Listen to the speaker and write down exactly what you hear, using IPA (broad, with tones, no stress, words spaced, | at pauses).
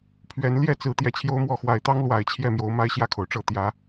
pʰɥɛ˨˦n ljɛ˥˨t͡sɹ̩˨˦ t̪jɛ˨˩t͡ɕʰjo˦ʊ̯mwɔ˥˨ xwa˨˩ɪ̯t̪ɑ˦ŋ lwa˨˩ɪ̯t͡ɕʰjɛ˥˨mjo˨˦ʊ̯ ma˦ɪ̯ɕjä˥˨kʰo˩ʊ̯ʈ͡ʂɤ˥˨ t̪jä˨˦